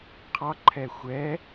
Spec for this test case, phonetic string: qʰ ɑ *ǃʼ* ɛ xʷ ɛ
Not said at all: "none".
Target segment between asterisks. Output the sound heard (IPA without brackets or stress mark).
ǃʰ